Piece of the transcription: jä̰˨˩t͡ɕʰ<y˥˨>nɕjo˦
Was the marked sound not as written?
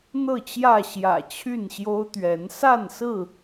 no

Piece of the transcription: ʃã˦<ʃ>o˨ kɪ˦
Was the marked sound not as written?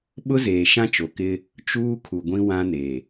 yes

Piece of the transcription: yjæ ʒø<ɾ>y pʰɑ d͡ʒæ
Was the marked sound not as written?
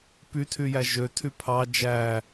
yes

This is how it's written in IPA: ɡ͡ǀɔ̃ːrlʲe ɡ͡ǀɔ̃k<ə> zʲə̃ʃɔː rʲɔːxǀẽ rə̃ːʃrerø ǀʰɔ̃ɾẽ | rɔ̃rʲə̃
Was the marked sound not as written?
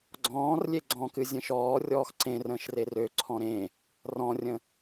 yes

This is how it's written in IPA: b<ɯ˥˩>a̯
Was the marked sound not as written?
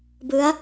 yes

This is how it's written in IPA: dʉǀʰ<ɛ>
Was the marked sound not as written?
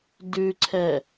no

